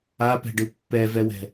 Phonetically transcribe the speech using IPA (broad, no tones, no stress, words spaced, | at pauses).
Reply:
apɛ̤ɖɯ pːɛvɛwɛ̤